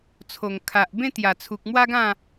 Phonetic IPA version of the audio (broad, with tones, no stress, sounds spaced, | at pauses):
t͡sʰ o˨˩ ŋ kʰ a˨ ʔ b ẽ˥˧ t̪ j a˨˩ t͡sʰ u˨ k̚ m w a˦ ɡ ã˥˧